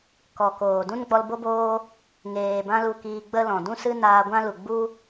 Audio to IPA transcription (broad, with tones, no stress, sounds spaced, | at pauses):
k ɔ˨ k oː˨ d ũ˦ n ɡ͡b ɔ˧ l b o˦ b oː˦ | ŋ eː˨ b ã˦ l u˧ k iː˧ ɡ͡b ə˦ l ɔ̃˨ d ũ˦ s ɨ˦ n aː˧ ɡʷ ã˦ l u˨ ɡ͡b u˦